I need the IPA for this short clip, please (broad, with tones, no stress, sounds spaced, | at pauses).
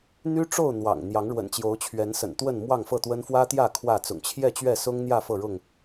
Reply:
n̪ y˦ ʈ͡ʂ o˥˨ ʊ̯ n̪ w ɑ̰˨˩ ŋ n̪ j ɑ˨˦ ŋ ɻ w ə̰˨˩ n t͡ɕ j o˨˦ ʊ̯ t͡ɕʰ ɥ ɛ˨˦ n s ə̰˨˩ n t̪ w ə˥˨ n m w ɑ˥˨ ŋ f ɤ˥˨ t̪ w ə˦ n f w ä˦ t̪ j ä˥˨ kʰ w ä˥˨ t͡s ʊ̰˨˩ ŋ t͡ɕʰ j ɛ˥˨ t͡ɕ ɥ ɛ˥˨ s ʊ˦ ŋ n̪ j ä˥˨ f ɤ˥˨ ɻ ʊ˥˨ ŋ